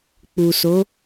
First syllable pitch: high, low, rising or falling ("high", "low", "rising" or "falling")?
low